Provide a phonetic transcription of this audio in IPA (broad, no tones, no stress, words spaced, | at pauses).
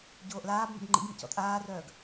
ɟoːʔlaːbmə̰b ŋ͡ǃḭɡmḭc ɔ̰tʼaːrœːɡ